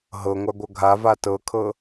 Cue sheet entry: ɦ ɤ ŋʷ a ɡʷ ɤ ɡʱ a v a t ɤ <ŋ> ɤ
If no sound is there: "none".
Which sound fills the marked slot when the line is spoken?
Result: kʰ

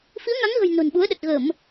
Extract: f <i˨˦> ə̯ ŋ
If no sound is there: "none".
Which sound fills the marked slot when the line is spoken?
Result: i˨˦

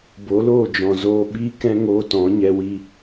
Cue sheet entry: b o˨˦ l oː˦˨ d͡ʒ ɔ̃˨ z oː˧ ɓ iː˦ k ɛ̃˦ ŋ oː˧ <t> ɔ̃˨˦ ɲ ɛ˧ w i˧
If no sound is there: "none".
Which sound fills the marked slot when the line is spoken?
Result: t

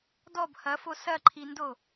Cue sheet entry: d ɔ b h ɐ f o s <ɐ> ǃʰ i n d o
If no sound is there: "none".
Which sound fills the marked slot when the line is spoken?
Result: ɐ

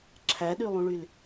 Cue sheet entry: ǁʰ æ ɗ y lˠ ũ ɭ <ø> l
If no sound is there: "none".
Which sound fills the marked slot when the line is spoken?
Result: y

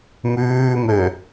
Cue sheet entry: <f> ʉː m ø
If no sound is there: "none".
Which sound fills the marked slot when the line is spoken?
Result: m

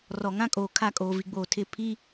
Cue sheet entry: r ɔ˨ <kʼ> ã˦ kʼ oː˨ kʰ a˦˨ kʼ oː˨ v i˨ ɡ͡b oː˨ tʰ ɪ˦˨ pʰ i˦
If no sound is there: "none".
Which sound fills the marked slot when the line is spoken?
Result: ŋ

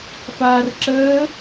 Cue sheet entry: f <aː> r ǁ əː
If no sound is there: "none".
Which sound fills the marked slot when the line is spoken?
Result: aː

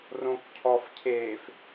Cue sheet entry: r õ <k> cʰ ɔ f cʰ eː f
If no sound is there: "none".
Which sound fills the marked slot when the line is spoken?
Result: k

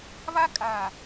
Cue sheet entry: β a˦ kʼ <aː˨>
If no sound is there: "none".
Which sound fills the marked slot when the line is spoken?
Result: aː˨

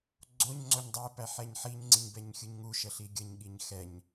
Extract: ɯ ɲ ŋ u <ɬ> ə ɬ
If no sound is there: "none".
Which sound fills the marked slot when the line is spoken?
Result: ʃ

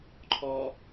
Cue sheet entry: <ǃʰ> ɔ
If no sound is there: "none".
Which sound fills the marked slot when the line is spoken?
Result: ǃʰ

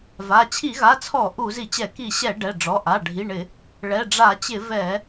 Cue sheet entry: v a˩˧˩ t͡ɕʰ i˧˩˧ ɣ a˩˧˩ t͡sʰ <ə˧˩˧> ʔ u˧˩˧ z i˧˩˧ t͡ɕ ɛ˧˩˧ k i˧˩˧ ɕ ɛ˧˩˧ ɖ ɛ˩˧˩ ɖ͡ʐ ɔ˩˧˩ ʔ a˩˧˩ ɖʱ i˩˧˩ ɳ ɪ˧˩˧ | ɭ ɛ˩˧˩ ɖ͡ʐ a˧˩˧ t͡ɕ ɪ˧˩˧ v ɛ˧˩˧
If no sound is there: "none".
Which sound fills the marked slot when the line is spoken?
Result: ɔ˧˩˧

